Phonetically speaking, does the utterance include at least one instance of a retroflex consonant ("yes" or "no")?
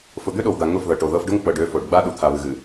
yes